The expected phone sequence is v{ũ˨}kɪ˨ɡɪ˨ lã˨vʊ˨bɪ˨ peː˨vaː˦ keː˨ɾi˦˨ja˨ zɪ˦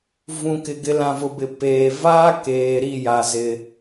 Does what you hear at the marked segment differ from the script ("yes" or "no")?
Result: no